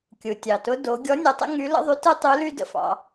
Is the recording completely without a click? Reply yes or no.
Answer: yes